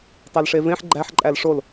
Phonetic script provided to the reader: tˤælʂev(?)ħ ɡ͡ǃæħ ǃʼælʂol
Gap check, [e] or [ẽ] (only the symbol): ẽ